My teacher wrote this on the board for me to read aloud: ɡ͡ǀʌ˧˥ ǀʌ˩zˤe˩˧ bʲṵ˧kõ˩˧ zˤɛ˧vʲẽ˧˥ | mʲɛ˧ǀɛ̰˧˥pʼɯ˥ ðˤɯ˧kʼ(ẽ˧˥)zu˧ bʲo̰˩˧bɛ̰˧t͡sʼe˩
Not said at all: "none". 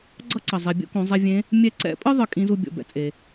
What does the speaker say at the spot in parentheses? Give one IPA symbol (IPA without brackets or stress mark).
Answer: ĩ˧˥